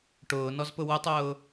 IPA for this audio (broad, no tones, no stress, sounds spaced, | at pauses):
ʈ ʊː n ɔ z p ʊ w ʊ tˤ ʊː